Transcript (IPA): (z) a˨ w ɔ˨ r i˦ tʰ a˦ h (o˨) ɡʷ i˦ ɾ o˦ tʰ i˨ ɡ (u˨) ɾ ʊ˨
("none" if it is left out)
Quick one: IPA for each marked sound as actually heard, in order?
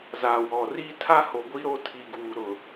z, o˨, uː˨

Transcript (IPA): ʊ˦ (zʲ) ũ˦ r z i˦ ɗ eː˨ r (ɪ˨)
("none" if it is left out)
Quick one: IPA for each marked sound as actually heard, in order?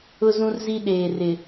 z, ɪ˨

